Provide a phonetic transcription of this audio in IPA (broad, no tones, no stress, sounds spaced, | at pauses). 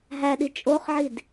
ɦ æ ɗ i t͡ʃʼ o χ ʕ i d